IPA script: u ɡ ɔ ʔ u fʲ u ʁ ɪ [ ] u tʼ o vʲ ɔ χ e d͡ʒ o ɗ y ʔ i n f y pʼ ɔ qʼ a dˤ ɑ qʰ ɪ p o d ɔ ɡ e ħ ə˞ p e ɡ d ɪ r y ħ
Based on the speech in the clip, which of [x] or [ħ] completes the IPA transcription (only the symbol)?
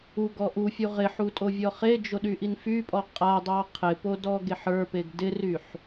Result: ħ